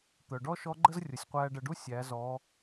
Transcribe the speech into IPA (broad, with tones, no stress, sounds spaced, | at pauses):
t̪ œ˩ ɖ ɔ˥ ʃ ɔ˧˥ ɡ͡ǃ ə˥ z rʲ ʊ˩ sʲ qʷ æː˧ ɖ ə˩˧ ɖ u˥ sʲ æ˩˧ z ɔ˩˧